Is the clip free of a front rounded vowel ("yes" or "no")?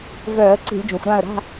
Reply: no